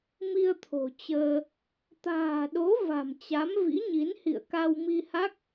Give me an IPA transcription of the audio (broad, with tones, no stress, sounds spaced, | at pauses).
m i˧ ə̯ t̪ʰ o̤˨˩ t͡ɕ əː˧ | t̪ a̤ː˨˩ ɗ o˨˦ v a̤˨˩ m t͡ɕ a˨˦ m v ḭ˧˥ ɲ i˨˦ n h ḭ˧˨ ə̯ k a˧ w m i˧ h a˦˥ k̚